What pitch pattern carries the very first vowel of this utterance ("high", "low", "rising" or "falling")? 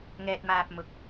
low